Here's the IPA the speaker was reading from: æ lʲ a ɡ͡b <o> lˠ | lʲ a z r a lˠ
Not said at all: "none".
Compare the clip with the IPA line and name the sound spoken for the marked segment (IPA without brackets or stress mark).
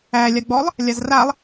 ɔ